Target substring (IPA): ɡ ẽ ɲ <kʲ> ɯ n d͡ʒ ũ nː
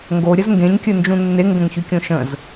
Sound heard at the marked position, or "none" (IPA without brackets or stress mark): kʲ